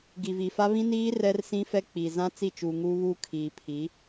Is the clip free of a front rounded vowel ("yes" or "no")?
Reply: yes